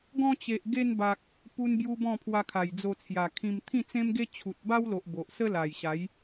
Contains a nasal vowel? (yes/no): yes